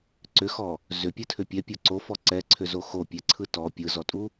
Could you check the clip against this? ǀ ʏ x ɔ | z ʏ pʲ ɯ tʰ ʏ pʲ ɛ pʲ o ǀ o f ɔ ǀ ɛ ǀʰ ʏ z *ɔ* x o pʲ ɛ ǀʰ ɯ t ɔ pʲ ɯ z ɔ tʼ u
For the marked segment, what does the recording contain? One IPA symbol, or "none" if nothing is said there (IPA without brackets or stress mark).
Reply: o